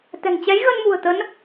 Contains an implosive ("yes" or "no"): no